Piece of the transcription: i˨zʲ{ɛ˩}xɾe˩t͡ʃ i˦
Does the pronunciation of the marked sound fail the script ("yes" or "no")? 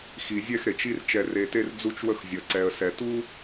yes